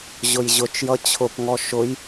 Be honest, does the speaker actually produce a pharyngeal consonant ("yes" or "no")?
no